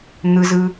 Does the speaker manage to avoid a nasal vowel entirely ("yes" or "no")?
yes